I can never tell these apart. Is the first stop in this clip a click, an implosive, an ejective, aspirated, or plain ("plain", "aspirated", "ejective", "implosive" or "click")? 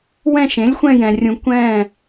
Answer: plain